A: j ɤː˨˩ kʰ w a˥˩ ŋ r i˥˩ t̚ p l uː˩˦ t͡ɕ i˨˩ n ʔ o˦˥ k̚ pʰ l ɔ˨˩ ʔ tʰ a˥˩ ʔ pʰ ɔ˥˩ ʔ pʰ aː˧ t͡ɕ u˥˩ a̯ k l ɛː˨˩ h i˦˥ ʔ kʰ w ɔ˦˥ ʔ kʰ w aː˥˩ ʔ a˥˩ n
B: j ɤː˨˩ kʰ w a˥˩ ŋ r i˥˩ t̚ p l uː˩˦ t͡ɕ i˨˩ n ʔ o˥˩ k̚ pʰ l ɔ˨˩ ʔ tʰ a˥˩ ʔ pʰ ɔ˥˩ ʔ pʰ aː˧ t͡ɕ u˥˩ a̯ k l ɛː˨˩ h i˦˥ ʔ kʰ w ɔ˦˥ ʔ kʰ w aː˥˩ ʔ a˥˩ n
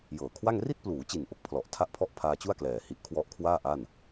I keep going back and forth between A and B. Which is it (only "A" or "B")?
B